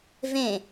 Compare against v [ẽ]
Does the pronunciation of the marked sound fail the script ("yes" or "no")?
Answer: no